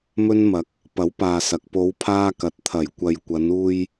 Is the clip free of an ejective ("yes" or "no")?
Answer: yes